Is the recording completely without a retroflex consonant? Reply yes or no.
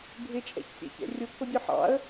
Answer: yes